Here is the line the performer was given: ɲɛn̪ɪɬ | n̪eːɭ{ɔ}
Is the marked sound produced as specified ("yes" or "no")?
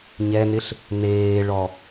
yes